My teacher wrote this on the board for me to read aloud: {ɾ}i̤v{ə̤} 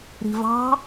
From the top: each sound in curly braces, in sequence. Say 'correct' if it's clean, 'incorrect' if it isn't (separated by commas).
correct, incorrect